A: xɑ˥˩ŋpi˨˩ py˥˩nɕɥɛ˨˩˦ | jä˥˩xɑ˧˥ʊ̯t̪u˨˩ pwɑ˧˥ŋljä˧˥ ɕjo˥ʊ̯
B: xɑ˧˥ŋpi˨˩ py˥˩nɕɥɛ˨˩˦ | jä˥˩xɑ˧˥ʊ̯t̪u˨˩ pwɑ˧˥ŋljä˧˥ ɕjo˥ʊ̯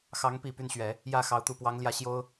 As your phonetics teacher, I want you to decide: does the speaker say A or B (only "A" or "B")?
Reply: B